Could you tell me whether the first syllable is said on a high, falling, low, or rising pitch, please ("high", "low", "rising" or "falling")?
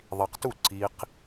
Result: low